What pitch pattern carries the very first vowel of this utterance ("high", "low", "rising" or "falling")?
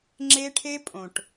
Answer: high